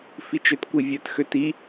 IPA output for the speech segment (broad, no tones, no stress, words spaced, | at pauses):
fit͡ʃøtkʷivʲœt xøti